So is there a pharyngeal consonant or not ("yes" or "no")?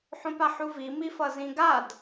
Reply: yes